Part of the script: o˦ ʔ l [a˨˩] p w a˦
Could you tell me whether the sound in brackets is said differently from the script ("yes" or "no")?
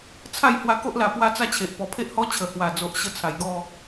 no